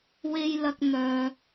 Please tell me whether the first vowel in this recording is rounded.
no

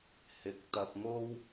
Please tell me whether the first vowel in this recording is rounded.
no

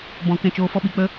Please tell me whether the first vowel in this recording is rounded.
yes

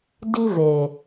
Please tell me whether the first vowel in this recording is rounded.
no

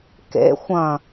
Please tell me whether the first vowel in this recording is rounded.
no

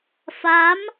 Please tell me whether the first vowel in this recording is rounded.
no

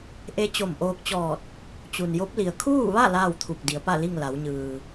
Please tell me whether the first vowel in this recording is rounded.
no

